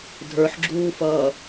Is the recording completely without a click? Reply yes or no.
no